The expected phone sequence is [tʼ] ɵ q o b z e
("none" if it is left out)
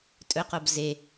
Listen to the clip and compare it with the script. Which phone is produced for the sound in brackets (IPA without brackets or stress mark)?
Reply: tʼ